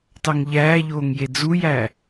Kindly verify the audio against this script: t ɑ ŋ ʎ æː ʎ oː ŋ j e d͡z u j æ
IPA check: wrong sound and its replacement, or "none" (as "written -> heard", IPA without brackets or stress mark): none